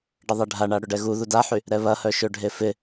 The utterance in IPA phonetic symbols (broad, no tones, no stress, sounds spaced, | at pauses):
ɖ ɪ ðˤ ɛ ɖʱ a ɳ a ɽ ʏ ɖ ɛ ɣ u ð u d a ħ y | ɾ ɛ β ɐ h œ ʃ ø ɖʱ e f ɪ